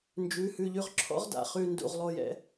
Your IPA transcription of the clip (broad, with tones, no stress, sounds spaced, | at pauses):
n d͡ʒ ʉ˩˧˩ h ʉ˦˨ ʎ ʉ˦˨ ʁ ǁʰ ɔ̰˧˥ ʁ d a̰˩ χ ʉ˦˨ n d ṵ˦˨ ʁ lˠ o˦˨ j ɛ̰˧˥